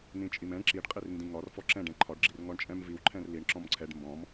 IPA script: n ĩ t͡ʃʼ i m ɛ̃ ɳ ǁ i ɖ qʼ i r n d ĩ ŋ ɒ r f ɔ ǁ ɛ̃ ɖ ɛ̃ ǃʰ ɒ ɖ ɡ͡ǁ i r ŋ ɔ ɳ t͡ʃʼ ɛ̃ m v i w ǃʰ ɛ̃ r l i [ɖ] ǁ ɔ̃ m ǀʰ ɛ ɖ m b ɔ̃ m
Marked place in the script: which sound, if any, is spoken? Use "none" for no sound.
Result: ɳ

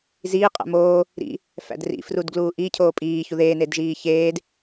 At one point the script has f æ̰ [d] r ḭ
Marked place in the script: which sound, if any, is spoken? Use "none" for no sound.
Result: d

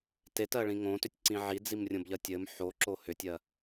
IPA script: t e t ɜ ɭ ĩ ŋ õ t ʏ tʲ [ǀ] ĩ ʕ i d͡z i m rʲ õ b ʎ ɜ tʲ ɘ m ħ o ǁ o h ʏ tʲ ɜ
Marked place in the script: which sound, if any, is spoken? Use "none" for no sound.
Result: ǀ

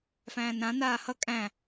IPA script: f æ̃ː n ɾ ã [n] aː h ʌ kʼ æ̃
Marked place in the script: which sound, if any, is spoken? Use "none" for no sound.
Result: n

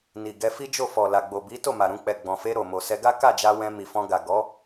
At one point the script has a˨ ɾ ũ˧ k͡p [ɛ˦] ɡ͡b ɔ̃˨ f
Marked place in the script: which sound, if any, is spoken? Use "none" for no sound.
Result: ɛ˨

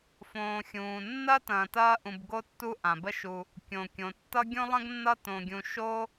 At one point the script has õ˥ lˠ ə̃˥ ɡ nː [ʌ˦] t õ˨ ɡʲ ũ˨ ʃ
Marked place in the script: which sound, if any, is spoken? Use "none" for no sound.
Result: ʌ˦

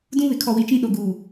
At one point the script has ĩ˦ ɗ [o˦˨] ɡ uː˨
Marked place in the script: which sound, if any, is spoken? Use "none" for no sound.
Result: o˨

